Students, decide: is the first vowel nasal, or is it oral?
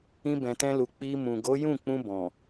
nasal